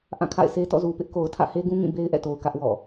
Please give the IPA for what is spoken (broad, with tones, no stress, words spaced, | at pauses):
ʔã˦˨kʰa̰˦˨ɪ̯sʰe˦ tɔ̰˦˨zu˨pɪ˦ʔko˨ʊ̯ tʰä̰˦˨he˦ɡũ˦ŋĩ˦˨ be˦ɪ̯ʔɛ̰˦˨to˨ʊ̯ kä˦ʔwɔ̰˦˨